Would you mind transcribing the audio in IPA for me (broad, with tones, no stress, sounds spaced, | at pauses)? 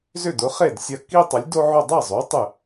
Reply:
z ʏ˥˩ d ʊ˩˥ χ e˥˩ d sʲ ɐ˧˩ k i˦ tˤ ɐ˩˥ lʲ d o˦ ʕ ʊ˥˩ dˤ ɛ˥˩ zˤ o˩˥ tˤ ʏ˧˩